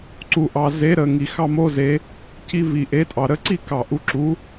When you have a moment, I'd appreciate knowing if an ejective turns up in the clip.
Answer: yes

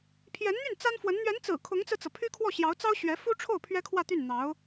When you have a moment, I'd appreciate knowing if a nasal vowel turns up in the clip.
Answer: no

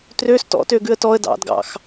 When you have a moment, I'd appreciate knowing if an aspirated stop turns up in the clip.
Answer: no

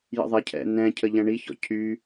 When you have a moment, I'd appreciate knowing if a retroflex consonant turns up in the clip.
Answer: yes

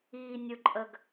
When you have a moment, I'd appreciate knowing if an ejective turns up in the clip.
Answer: yes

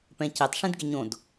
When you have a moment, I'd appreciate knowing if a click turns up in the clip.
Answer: no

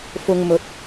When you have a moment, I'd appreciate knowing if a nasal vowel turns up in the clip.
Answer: no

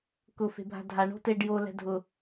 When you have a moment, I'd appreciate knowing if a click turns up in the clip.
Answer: no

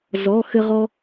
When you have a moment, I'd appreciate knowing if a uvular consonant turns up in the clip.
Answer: yes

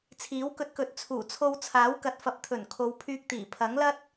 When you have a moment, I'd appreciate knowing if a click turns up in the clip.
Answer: no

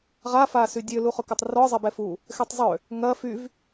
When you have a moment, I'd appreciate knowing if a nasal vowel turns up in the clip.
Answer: no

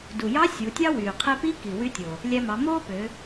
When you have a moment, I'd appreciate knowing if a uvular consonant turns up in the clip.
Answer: yes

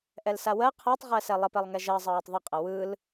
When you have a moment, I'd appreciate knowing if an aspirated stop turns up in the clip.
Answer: yes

